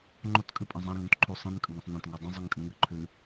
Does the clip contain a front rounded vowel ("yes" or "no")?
no